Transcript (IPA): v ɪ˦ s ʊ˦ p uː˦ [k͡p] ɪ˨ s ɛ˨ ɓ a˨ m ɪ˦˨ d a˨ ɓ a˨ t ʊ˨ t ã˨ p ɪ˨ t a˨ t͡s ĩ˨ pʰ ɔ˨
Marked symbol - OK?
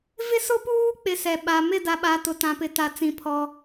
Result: yes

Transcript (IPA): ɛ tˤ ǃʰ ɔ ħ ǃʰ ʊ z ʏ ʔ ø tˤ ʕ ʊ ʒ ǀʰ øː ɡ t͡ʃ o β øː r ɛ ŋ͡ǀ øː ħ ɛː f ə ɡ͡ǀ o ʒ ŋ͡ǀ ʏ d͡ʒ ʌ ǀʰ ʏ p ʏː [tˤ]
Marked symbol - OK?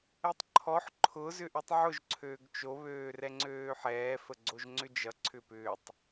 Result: yes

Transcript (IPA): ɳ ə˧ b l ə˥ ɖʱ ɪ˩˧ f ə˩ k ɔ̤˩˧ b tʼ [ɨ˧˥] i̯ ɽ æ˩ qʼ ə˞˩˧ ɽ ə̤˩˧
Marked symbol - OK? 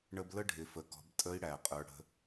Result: no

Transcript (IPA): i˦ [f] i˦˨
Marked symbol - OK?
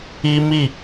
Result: no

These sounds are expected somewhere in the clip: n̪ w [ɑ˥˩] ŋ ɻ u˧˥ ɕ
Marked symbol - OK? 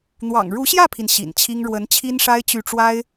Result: no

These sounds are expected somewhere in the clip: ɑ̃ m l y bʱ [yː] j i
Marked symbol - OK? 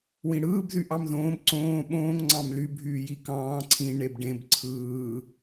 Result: yes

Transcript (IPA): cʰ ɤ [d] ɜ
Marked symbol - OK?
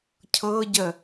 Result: no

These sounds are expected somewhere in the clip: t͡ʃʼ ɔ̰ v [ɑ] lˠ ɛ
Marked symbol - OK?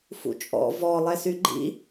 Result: no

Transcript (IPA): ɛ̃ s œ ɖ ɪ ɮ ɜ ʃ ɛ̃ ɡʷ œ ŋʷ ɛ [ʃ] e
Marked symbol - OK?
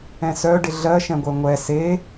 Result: no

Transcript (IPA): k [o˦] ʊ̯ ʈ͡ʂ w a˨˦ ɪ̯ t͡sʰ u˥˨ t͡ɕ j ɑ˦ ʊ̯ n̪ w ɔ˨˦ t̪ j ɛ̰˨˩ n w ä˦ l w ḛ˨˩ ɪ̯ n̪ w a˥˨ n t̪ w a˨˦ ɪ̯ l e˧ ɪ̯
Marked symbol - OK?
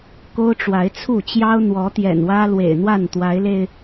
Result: yes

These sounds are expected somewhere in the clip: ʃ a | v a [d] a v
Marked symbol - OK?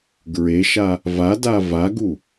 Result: yes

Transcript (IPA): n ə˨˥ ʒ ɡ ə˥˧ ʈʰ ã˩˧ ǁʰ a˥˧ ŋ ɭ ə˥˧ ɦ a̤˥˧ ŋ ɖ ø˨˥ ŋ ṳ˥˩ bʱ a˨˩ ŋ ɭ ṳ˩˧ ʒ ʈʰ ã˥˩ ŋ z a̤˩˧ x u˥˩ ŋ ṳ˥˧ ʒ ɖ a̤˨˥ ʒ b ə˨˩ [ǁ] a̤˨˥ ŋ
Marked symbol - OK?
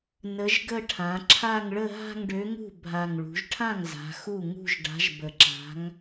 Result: yes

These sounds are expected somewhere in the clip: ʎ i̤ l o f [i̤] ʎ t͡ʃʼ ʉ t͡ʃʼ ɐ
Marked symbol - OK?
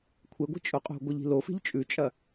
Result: yes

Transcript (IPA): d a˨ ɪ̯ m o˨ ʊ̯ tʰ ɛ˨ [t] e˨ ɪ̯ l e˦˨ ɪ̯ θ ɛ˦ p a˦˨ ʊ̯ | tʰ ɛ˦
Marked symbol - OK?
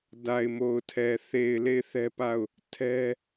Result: no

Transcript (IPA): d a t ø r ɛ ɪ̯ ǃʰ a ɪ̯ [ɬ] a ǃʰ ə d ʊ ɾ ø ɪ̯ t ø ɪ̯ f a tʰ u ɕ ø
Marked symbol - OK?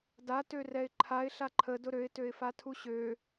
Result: yes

